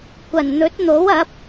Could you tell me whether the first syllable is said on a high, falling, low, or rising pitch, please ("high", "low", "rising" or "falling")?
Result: low